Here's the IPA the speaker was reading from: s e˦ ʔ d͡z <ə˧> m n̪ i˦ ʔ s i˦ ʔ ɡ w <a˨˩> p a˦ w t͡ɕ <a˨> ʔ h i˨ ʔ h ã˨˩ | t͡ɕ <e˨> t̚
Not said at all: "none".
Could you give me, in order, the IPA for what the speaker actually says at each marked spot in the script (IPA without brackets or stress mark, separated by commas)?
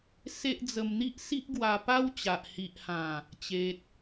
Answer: ə˧, a˧, a˨, e˨